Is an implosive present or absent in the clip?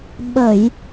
present